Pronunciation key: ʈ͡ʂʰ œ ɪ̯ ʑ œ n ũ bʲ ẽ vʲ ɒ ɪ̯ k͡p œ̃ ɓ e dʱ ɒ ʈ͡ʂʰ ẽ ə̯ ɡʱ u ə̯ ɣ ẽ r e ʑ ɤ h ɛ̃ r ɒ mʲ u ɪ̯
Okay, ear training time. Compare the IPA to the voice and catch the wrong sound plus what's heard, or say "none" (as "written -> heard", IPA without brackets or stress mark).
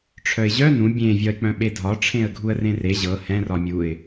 ɣ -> r